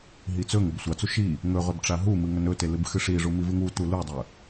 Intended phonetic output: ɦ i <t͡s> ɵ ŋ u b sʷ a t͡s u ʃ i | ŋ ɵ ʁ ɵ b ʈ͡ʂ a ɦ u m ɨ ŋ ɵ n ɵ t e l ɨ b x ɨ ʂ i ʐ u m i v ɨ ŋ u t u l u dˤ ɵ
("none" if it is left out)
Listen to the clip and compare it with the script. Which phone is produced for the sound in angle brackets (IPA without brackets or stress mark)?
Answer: t͡s